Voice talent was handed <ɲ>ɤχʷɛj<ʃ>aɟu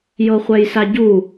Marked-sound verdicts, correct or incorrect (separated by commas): incorrect, incorrect